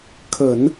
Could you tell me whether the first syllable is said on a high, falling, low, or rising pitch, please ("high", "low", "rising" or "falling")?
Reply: low